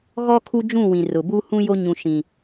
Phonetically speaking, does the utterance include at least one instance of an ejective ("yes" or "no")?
no